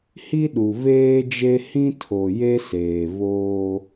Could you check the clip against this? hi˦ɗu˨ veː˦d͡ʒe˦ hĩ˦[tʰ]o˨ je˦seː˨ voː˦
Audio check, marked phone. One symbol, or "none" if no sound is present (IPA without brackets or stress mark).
tʰ